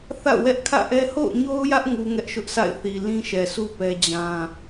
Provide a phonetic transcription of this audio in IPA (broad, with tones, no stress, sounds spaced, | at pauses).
θ a̰˦˨ ʊ̯ w ɛ˦ ʔ kʰ ä̰˦˨ ʔ ɛ˦ h o̰˦˨ ʊ̯ ɲ o˦ ʊ̯ j ä˦ ʔ ŋ u˦ ŋ ɛ˦ ʔ ʃ ʊ˦ ʔ s a̰˦˨ ɪ̯ θ i˨ l ĩ˦ ʃ ɛ˨ s u˦ p ɛ˦ d͡ʑ ã˦